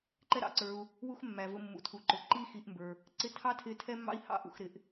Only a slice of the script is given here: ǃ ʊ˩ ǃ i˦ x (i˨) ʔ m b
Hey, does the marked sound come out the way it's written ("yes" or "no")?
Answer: yes